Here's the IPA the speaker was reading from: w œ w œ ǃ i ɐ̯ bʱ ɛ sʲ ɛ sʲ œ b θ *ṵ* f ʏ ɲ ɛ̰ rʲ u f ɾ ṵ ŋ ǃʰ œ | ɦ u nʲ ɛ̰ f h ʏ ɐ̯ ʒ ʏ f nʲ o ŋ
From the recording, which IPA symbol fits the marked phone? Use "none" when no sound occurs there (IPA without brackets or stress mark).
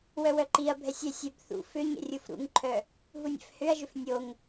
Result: ṵ